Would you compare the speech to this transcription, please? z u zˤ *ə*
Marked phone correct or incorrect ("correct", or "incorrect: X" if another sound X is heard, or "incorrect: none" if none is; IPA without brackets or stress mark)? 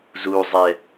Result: incorrect: ɛ